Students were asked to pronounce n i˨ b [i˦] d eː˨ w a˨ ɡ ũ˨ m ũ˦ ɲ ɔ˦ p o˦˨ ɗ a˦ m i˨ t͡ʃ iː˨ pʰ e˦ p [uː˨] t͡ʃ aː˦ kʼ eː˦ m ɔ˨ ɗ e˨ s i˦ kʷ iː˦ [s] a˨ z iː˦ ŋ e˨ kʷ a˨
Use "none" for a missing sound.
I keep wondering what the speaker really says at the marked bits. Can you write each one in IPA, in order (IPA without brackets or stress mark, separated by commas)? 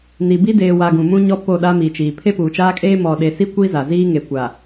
i˦, uː˨, z